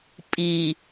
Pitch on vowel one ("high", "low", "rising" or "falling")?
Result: low